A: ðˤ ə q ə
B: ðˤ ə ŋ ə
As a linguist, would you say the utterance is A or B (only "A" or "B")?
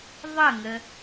B